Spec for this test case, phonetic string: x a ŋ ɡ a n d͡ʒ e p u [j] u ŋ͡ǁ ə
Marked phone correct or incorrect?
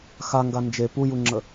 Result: correct